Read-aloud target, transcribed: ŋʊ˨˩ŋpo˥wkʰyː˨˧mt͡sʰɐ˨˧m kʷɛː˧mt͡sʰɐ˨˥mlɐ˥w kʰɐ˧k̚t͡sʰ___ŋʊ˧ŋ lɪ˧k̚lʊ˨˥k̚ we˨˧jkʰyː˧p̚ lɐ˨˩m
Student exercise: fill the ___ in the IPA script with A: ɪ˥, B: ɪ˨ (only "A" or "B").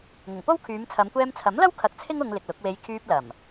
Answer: A